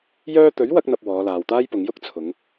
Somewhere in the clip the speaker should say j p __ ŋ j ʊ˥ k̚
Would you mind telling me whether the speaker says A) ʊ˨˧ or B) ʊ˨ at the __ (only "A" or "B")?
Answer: A